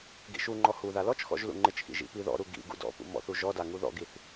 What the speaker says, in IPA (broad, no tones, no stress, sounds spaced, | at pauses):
ɡ ḭ ʃ u ŋ͡ǃ ɔ h u ð a l ɔ t͡ʃ x ɔ̰ ʒ l ṵ ŋ͡ǃ ɪ t͡ʃ x ḭ ʒ ḭ p i ð ɔ̰ ɾ u ɡ ḭ ɡ ṵ d ɔ̰ p ṵ m ɔ̰ θ u ʒ ɔ d a ŋ u ð ɔ̰ ɡ i θ